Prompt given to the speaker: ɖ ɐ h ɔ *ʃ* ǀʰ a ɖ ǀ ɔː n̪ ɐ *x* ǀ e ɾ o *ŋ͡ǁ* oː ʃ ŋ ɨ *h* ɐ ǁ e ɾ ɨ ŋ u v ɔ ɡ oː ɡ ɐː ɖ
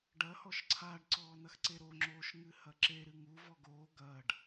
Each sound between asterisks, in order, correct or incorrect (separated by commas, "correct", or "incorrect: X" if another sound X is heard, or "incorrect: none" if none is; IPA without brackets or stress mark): correct, correct, correct, correct